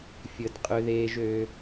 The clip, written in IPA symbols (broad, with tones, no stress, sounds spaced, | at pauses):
fʲ ə˨ d qʼ ø˧ ð eː˧ ʒ øː˧